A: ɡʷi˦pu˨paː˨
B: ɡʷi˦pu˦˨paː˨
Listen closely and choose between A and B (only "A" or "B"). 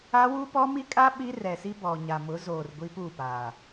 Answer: B